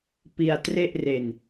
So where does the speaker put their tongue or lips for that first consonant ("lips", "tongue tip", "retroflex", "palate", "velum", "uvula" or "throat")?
lips